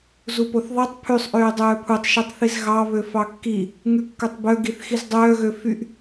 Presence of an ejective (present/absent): absent